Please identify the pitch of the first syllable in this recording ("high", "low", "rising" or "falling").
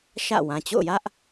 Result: falling